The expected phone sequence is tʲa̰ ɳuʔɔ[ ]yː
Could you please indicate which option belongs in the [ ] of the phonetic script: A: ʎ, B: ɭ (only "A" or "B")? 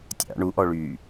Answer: B